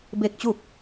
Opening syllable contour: falling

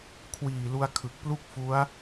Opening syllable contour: low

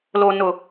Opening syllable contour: low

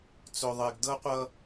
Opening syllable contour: low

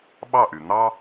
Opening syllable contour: falling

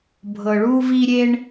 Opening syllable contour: low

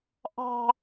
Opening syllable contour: high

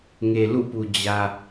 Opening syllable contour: low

